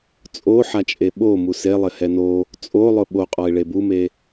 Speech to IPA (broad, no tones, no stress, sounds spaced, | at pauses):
t͡sʼ o ħ a t͡ʃʼ e ɓ o m u s e lˠ ɪ h ɛ n o | t͡sʼ o lˠ ʊ ɓ o qʼ ɔ ɪ̯ ɭ e b u m e